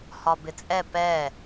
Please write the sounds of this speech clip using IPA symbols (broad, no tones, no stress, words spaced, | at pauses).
hɒbɪt͡sʼɛ pɛ